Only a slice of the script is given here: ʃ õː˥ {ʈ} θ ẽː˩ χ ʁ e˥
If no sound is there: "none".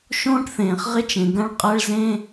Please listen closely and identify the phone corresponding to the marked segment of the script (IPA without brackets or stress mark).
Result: ʈ